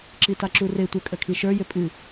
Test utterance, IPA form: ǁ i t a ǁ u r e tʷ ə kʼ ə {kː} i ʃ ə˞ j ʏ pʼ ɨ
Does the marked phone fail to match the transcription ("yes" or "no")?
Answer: yes